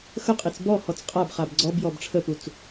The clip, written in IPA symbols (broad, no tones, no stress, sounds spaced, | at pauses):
x ə qʼ i t͡s b ɔ h ɔ t͡s qʼ a b χ a b ɡ͡ǀ ɔ b j ɔ b ʈ͡ʂʰ ə p u t͡s